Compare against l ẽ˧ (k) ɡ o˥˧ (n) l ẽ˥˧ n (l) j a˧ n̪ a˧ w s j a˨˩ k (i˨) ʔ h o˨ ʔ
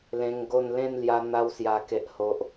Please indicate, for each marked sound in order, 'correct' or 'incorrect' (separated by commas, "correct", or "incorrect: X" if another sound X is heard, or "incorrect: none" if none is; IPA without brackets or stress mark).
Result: incorrect: ŋ, correct, correct, incorrect: e˨